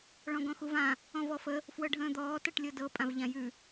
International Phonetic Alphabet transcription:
ɭ ɔ̃ ɡ ɔ̃ x u v ã | ɔ̃ v ɔ f ə | f w ɤ ɖʱ ə̃ː d̪ ɔː t ɤ ʈ lʲ ɤ d ɤ pʼ ã v ʎ ã j ʉ

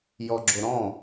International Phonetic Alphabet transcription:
j ɔ ɡ͡ǁ o ɾ ɔ̃

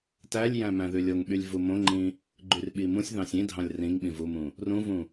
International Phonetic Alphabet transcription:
t æ lʲ j æ̃ m æ̃ ð ʉ lʲ o ŋ ɓ y lʲ v u m õ ŋ͡ǃ ĩ | ɡ͡ǃ y r ɓ i m ũ sʲ ð ɑ̃ sʲ ĩ dʱ ɑ̃ lʲ r ĩ ŋ ɓ ĩ v u m ũ | r ũ v ũ

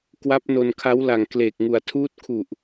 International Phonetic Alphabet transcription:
k w a˦˥ p̚ n o˧ n kʰ a˦˥ w l a˨˩ ŋ k l eː˨˩ k̚ ŋ u˨˩ a̯ tʰ uː˦˥ t̚ kʰ u˨˩ ʔ

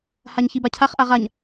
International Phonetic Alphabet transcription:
h a ɲ ç i b a cʰ a χ ʔ a ʁ a ɲ

